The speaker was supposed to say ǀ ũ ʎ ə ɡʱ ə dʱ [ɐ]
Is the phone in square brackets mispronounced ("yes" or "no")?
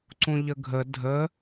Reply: yes